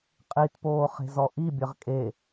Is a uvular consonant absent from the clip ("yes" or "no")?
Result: no